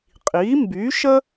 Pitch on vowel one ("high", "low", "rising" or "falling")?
rising